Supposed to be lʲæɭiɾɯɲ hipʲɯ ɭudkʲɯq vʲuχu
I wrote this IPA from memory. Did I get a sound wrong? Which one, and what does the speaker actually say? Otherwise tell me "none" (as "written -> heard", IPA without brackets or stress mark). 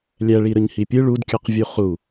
none